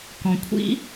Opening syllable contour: low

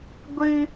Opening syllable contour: high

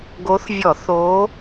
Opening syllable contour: rising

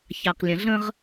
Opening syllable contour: low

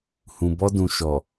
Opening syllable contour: low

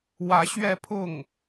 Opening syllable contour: rising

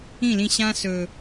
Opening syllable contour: falling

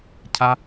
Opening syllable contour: high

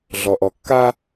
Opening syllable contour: low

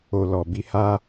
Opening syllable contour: low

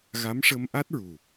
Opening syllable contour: rising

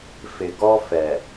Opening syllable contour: low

